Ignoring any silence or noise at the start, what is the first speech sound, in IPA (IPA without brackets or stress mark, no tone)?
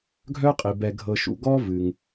ɡʱ